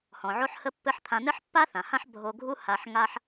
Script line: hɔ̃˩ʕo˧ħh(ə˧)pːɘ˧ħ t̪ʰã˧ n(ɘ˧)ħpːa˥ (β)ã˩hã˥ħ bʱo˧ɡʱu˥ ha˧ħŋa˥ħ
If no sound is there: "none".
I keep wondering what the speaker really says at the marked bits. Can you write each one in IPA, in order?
ə˧, ɘ˥, θ

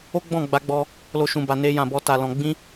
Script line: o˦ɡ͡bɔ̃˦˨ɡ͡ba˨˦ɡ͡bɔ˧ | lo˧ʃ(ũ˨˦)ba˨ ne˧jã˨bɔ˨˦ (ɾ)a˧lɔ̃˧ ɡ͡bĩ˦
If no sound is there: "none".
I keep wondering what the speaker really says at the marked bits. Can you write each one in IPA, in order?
ũ˨, t

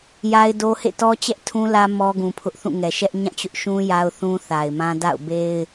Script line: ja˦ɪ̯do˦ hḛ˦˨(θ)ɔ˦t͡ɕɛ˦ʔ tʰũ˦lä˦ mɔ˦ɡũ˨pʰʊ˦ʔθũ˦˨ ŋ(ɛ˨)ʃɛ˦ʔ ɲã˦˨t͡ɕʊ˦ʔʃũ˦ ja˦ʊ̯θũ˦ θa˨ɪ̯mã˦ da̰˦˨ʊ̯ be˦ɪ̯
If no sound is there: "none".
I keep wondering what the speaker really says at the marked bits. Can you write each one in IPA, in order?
t, ɛ˨

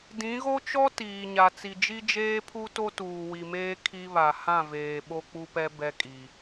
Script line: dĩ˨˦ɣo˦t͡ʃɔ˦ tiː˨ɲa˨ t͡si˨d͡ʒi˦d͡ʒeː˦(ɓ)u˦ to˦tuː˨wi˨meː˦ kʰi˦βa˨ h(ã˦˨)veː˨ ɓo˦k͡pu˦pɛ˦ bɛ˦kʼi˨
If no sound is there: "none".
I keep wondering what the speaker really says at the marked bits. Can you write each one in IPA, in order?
pʰ, ã˦˨

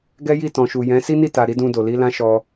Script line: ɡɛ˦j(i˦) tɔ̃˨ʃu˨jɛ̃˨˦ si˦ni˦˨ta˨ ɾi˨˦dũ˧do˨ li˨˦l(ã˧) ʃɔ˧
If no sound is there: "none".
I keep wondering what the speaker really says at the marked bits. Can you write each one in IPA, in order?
i˦˨, ã˦

